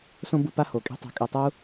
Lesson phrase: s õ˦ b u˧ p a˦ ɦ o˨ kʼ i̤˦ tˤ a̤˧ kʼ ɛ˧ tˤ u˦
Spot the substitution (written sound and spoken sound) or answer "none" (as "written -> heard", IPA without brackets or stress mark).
ɦ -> h